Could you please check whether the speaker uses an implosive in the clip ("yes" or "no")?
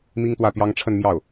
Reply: no